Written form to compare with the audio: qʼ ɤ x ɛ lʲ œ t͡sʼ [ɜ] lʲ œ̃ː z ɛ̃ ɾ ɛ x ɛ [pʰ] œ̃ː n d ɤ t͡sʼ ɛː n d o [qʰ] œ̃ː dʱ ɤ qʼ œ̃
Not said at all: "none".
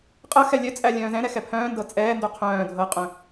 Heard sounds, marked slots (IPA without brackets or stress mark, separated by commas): æ, pʰ, qʰ